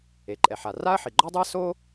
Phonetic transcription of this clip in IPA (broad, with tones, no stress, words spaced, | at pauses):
e˩ǃʼɛ˩ħa˩ ra˥ɐ̯ħi˩ɡ͡ǃɔ˥dˤɨ˥ɐ̯ so˥